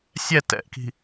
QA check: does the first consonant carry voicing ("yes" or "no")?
no